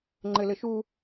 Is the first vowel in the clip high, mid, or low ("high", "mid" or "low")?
mid